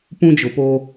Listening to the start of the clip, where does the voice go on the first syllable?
high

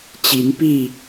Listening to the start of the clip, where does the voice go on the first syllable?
rising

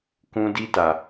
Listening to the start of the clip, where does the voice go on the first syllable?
high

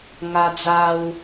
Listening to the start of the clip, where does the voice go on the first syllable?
high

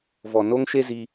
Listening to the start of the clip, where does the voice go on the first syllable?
low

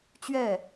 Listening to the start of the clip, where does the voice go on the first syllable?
falling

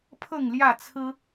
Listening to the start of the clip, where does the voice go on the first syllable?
falling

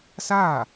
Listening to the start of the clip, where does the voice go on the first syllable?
falling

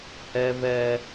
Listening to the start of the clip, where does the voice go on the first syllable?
high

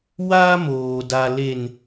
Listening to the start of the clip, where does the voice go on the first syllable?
high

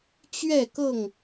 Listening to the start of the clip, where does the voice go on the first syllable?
falling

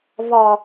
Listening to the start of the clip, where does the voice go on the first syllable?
low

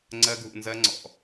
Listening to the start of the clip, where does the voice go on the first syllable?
high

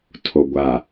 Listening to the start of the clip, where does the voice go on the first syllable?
low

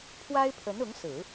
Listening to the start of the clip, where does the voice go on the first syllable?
high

